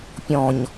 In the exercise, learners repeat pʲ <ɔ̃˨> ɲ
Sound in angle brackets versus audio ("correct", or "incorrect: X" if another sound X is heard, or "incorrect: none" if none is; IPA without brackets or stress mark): correct